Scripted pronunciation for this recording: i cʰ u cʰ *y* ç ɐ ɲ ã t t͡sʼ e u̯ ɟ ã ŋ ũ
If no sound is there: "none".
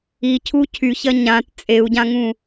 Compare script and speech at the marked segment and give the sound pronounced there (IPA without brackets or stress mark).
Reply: y